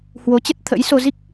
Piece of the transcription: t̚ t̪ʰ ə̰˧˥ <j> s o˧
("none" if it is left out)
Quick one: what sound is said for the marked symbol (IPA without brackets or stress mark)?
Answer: j